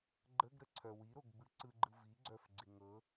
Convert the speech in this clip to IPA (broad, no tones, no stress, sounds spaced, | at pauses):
ɡ͡ǃ ə ɡ ɾ ə ǀʰ œ w i ɾ o ɡ ɡ͡b ɯ ǀ ɯ ɡ͡ǃ ɯ v i ɡ͡ǀ œ f ɡ͡ǀ ɪ ŋ ɤ